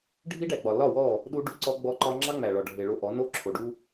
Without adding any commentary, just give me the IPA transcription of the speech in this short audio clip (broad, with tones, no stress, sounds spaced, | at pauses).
ɖʱ i˦ ɖ æ˨ ɡ͡b ɒ˨ l ɒ˦˨ w ɔ˦˨ | ɗ u˦ ɖ u˦ ǀ ɔ˦ ɡ͡b ɔ˦ ǃ ɒ˦ ŋ͡ǁ ɑ˦ ŋ͡m æ˨ ɭ ɒ˨ ɖʱ e˨ ɭ o˦ ʔ ɔ˨˦ n o˦ ǁʰ o˨ ɖ u˦